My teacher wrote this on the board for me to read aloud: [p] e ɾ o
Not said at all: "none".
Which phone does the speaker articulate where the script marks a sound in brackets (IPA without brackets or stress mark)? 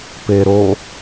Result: p